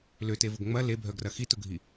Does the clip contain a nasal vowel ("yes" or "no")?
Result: no